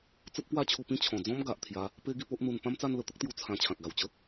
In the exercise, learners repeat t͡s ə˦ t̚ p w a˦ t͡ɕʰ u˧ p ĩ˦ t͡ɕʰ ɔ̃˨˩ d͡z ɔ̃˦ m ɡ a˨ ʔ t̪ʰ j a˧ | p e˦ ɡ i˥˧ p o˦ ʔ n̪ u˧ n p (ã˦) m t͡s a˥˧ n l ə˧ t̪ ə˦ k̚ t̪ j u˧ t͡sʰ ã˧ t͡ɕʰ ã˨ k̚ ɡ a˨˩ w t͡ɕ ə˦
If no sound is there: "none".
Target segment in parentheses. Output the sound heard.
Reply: ã˦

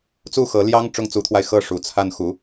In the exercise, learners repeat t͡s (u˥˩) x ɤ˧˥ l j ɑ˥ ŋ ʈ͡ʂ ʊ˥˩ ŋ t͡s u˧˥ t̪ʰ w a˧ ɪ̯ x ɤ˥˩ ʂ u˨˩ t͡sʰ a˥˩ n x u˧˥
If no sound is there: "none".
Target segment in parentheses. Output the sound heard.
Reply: u˥˩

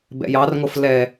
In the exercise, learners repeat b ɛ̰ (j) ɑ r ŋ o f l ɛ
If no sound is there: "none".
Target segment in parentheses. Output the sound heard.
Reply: j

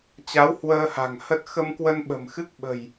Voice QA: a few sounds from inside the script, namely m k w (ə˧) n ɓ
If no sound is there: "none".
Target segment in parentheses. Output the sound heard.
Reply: ə˧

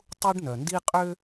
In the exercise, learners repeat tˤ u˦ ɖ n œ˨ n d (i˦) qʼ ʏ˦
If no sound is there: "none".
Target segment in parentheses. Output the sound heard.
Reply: i˦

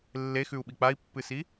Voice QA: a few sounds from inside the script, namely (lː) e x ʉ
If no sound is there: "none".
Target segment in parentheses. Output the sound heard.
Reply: lː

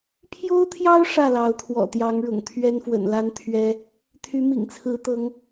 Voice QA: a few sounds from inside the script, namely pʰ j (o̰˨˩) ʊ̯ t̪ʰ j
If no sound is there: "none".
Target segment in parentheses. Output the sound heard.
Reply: o˥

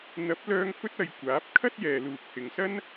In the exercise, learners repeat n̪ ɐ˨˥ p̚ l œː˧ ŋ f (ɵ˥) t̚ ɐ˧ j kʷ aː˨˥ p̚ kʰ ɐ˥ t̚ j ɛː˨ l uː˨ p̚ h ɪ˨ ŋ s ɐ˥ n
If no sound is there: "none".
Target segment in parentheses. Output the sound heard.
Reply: ɵ˥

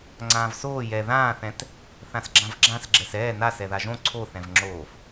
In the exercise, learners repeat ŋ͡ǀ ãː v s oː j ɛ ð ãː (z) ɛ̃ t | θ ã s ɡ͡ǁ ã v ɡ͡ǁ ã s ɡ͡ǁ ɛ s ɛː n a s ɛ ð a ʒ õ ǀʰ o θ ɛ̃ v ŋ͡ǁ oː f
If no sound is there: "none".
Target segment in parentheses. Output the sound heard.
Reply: θ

